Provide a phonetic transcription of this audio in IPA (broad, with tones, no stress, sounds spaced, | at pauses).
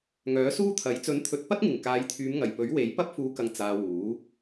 ŋ œː˨˥ s uː˥ t̪ʰ ɐ˨˥ j t͡s ɵ˨˥ n t̪ʰ ɵ˨˥ t̚ p ɐ˥ t̚ ŋ ɪ˨˩ ŋ k aː˨˧ j t̪ʰ yː˨˧ m ŋ ɐ˨˩ j p ɵ˨˥ ɥ w e˨˥ j p ɐ˥ p̚ f uː˨˧ k ɐ˨ ŋ t͡s aː˧ w uː˨˥